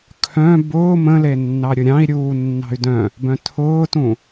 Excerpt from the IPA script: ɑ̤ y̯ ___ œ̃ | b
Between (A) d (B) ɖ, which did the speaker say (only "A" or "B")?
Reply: A